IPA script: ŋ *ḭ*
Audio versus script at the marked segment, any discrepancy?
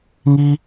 yes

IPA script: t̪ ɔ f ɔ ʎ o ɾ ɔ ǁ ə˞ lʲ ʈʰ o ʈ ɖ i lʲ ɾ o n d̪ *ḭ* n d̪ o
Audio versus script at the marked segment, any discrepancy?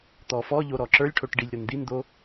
yes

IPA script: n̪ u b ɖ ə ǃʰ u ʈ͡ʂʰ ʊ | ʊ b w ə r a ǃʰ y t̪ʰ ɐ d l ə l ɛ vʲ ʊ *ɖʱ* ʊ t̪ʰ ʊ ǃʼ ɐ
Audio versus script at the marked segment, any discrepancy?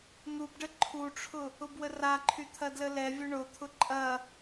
yes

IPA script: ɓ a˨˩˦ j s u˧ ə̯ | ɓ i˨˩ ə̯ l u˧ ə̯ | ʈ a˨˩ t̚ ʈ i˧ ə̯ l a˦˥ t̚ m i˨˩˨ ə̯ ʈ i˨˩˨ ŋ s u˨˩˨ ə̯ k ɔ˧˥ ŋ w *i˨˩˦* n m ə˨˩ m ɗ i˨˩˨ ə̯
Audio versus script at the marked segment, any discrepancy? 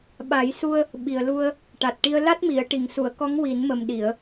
no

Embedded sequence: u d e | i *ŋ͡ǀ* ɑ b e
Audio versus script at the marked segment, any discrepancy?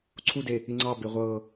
no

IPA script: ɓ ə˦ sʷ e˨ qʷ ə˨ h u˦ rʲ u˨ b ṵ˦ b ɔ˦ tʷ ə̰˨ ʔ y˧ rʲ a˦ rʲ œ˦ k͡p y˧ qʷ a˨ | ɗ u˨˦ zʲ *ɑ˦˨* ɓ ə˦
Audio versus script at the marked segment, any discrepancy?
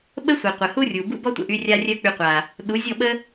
yes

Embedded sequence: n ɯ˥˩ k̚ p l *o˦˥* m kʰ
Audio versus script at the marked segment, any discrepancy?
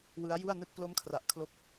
no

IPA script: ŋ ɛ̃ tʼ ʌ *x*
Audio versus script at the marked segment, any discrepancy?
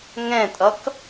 yes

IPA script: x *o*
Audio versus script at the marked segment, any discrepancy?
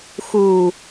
yes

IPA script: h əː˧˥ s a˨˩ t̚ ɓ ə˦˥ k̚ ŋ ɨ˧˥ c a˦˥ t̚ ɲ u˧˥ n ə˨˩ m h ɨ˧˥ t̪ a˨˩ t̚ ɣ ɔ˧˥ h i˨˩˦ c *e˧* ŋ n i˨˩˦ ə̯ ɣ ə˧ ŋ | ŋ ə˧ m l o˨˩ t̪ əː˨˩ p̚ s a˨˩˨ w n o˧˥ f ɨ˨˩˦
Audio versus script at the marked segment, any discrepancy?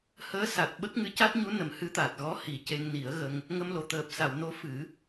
no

